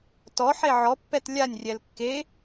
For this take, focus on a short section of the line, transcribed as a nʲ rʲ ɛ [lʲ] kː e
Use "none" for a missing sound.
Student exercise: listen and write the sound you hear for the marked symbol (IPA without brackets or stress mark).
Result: l